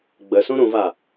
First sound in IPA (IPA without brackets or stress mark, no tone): ɡ͡b